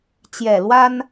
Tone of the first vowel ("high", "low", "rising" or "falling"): low